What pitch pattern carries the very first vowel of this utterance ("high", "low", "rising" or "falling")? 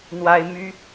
high